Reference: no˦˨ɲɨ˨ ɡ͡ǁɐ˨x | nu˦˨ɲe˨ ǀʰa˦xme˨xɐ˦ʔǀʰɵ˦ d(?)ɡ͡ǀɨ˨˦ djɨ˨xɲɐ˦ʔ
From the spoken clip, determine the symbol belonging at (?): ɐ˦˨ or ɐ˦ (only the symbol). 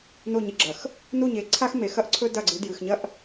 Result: ɐ˦˨